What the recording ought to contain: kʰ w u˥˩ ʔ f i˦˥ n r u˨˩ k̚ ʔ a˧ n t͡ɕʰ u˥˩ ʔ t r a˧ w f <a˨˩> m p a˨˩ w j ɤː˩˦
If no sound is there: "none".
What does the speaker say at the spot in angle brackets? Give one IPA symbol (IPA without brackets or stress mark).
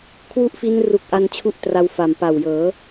a˨˩